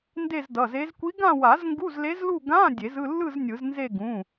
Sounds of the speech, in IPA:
nde˥˧zdʌ˩˧˩ze˧˥z kʷi˧˥ ɡã˥˧wa˨˩˦zŋɡu˧˥˧z le˧˥zlu˥˧ ɡã˧˥˧ dʲe˨˩˦zɯ˥˧lːɯ˥˧z nʲɯ˨˩˦znze˥˧ ɡũ˩˧˩

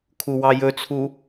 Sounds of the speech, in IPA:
kʰuwɑjɵt͡sʰu

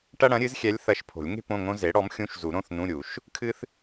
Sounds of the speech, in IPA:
ʈɐ˥ɽɐ̃˩˥ɾʲɨ˩˥zxʲɛ˧˥lʲ θɐ˧˥˧ʃpʰo̤˨˩˦lʲ ŋe̤˥ põ˧˥˧ŋõ˥ ze˩˥ɽɔ˩˥mxʲũ˧˥˧ʃzu˨˩˦ ɾõ˧˥˧θnũ˧˥˧ɾʲu˨˩˦ʃ | kʰɨ˥θ

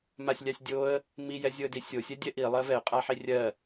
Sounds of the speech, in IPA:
masʲlʲasʲdʲoə̯ | mi jɛzʲoə̯disʲo sʲɛdʲɛʔi lˠɜvɛʊ̯ qʼaħirʲɜ

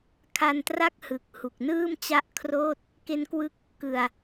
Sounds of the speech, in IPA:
kʰa˧ntra˥˩k̚hɯ˨˩k̚ hu˨˩k̚nɯː˥˩mt͡ɕa˥˩ʔkʰroː˥˩t̚ | ke˦˥nkwɯ˦˥k̚ | kɯ˨˩a̯

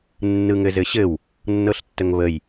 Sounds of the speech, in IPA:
nːɯŋɘzɘɕɘw | nːɤɬtːəŋβəj

